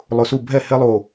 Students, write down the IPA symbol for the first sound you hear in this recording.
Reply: lˠ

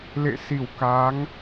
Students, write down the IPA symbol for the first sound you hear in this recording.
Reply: l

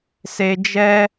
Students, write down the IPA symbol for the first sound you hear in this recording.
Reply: s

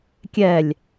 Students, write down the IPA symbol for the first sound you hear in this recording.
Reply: kʲ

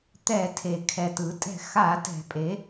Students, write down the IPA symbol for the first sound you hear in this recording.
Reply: t̪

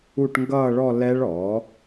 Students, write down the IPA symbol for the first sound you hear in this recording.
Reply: u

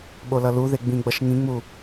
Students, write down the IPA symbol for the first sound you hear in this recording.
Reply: ɓ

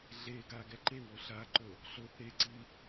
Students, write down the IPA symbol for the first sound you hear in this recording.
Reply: ɮ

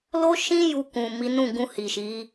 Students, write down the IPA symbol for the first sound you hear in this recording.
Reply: l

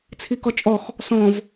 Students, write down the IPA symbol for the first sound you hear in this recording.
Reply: t͡sʰ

